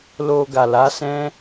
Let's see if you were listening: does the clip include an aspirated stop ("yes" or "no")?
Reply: no